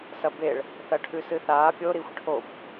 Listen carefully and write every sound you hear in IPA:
s ɐ b e ɭ | θ ɐ ʈʰ ʉ s ɨ θ aː pʲ o ɾ i xʷ ʈʰ o b

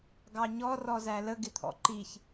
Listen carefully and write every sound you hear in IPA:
ɡ ɑ ɲ ɔ r ɔ z æ l ə ɡ ɪ t̪ʰ ɔ̰ ǃ i ç

